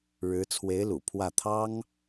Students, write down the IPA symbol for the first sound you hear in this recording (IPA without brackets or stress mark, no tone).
ɻ